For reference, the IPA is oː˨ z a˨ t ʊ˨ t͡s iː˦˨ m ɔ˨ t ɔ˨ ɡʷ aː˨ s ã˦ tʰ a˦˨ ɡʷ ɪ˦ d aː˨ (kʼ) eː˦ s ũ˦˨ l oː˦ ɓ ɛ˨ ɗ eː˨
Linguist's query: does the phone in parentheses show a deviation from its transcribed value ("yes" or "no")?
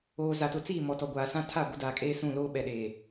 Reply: no